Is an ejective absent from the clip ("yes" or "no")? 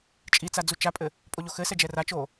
no